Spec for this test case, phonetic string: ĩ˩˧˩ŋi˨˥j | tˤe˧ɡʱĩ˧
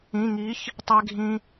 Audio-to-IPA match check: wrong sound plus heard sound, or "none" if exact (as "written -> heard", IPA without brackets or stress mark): j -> ç